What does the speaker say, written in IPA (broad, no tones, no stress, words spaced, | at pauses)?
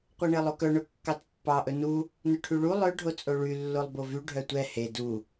qʷɛɳelˠokœ ɳɵkːɑtpːɑ ʔɵnu | nɵʈʰyɭu lˠœ ɖʱot͡sʼoɭy lːolˠbovy ɖʱœtʷɛ he du